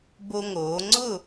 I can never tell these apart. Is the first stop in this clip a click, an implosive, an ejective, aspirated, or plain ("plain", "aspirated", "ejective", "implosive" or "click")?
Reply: plain